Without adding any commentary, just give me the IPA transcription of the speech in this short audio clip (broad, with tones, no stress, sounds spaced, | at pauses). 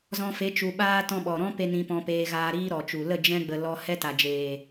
z ɔ̃˧ f e˨˦ t͡ʃ u˨ ɓ aː˦ t ɔ̃˧ ɓ ɔ˨ ɾ ɔ̃˦ p e˧ n ĩ˧ p ɔ̃˧ p eː˧ ɣ aː˧ ɾ iː˦ ɾ ɔ˨ t͡ʃ u˨ l ə˦˨ d͡ʒ ɛ̃˦ ɡ͡b ə˧ l ɔ˧ h ɛ˦ t a˨ d͡ʒ eː˨